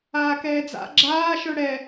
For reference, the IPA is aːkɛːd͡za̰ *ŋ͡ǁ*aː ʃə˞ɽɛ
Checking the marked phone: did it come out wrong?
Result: yes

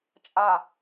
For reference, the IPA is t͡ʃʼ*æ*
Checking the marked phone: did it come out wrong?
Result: yes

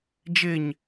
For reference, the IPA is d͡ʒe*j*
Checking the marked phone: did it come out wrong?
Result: yes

